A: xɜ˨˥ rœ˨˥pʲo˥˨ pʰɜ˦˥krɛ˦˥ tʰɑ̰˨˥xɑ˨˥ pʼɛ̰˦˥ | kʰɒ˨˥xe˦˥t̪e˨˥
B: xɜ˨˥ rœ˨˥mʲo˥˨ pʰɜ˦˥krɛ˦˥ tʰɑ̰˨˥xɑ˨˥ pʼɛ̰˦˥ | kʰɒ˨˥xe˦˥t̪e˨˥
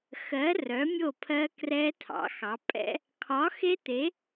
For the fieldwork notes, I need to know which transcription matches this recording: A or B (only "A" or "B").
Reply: B